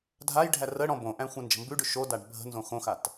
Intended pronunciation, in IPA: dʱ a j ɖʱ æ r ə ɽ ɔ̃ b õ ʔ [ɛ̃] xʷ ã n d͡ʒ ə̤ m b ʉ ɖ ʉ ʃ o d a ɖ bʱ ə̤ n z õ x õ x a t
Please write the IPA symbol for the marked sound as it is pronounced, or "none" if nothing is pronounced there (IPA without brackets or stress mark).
æ̃